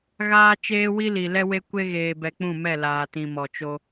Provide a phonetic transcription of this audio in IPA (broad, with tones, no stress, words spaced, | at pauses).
ɣaː˦ t͡ʃeː˦wi˦li˨ lɛ˦we˦kʷe˦ ɣeː˨bɛ˨ k͡pũ˦˨mɛ˦˨ laː˨tĩ˨mɔ˨t͡ʃo˦